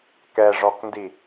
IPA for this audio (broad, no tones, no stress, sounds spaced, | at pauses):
k ɛ ʐ ɔ k n d i